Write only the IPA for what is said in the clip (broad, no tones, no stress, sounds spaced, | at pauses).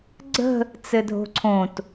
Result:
ɡ͡ǀ ə̤ | t͡s ɘ dʱ o̤ ǀʰ õ t